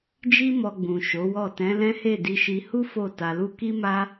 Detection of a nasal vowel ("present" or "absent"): present